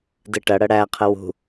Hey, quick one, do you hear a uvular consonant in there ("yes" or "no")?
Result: yes